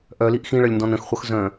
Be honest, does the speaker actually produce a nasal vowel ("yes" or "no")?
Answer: yes